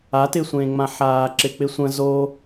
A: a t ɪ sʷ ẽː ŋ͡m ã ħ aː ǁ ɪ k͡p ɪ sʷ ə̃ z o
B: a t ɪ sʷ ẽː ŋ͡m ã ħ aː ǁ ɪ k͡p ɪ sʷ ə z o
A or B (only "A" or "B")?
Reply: A